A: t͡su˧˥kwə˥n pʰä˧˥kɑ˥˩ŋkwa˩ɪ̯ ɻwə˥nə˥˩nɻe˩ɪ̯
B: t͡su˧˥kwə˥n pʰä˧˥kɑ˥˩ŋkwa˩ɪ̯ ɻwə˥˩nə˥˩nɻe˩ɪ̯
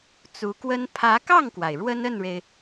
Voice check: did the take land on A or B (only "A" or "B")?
A